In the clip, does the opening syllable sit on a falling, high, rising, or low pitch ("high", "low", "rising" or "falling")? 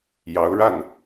rising